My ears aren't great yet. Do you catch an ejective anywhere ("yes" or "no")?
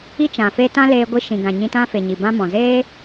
no